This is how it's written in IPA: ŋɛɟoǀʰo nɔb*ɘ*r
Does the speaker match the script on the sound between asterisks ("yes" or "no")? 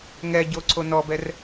no